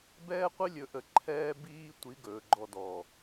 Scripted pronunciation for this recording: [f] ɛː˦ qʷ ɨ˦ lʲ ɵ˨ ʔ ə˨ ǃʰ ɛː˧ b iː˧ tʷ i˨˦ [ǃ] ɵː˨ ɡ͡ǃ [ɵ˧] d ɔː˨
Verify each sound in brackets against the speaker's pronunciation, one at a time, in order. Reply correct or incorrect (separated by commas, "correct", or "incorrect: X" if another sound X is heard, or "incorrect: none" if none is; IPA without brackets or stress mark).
incorrect: b, incorrect: ɡ, incorrect: ɔ˧